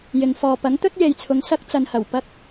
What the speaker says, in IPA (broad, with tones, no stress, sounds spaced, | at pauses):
j ɪ˨ ŋ f ɔː˨ p ɐ˨˥ ŋ t̪ ɵ˥ t̚ j e˨ j t͡sʰ ʊ˨ ŋ s ɐ˥ k̚ t͡s ɐ˨ n h ɐ˨˩ w p ɐ˧ k̚